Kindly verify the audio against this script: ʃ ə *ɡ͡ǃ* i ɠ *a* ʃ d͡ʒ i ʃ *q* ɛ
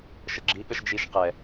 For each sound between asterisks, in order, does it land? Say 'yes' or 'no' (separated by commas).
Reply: no, no, yes